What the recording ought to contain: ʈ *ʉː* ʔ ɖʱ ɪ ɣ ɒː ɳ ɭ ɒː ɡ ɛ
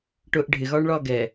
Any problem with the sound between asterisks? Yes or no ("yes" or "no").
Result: yes